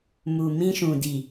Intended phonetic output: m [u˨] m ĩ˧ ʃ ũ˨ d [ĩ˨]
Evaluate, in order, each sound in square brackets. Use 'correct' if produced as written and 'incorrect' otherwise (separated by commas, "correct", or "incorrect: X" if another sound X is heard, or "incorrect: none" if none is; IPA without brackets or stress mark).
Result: correct, incorrect: i˨